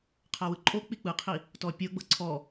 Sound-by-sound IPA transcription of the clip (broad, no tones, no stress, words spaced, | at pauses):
qʰawɯǃʼo k͡pik͡pɯqʰi | tɔpʲɤɡ͡bɤ ǀʰɔ